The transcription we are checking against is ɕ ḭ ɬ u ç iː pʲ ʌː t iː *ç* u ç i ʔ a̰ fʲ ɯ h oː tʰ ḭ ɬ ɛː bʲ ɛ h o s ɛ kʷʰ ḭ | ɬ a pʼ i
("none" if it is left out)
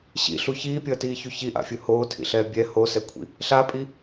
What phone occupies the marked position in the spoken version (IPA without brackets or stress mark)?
ç